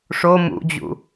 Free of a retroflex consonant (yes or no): no